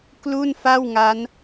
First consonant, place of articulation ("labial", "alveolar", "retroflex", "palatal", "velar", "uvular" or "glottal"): velar